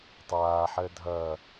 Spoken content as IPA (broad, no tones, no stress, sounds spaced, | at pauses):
tˤ aː ħ əː dʱ ʌː